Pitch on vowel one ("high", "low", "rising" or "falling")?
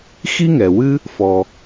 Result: high